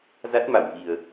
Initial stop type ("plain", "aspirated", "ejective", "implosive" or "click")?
plain